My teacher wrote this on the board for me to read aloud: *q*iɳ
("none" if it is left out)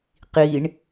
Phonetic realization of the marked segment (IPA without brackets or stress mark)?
q